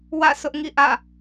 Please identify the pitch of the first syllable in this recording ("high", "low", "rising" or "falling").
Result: falling